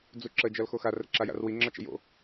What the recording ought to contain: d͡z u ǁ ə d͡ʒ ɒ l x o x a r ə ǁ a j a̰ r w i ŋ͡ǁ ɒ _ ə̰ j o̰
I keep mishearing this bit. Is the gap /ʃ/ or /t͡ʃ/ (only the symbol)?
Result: t͡ʃ